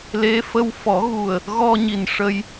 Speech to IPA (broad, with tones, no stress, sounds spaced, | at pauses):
l e˧˥ f ə˧ w f ɔ˨˩˦ ɣ u˨˩ ə̯ | ɣ ɔ˧ ɲ i˨˩ n ʂ ə˧ j